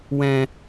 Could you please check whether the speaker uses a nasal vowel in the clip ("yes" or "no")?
yes